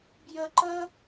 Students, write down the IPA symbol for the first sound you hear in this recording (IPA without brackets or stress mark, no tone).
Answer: b